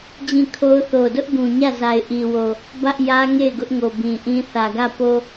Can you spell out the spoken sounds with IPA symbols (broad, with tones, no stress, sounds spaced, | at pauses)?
d͡ʑ ĩ˦˨ kʰ o˦ ʊ̯ θ o˨ d ʊ˦ ʔ ɡ ũ˨ ɲ ä˦˨ z a˨ ɪ̯ ʔ i˨ w o˨ | b ä˦ ʔ j ä˦ ŋ e˦˨ ɪ̯ ɡ ʊ˦ ʔ ŋ o˨ b ĩ˨ ʔ ĩ˦ θ ä˨ ɡ ä˦˨ p o˦